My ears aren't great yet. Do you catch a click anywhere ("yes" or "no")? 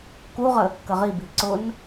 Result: yes